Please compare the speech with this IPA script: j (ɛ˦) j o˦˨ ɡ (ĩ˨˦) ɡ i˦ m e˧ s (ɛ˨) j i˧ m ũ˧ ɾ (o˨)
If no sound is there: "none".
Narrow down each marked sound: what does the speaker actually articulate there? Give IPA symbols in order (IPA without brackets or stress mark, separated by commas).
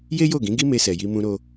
e˦, ĩ˨˦, ɛ˨, o˧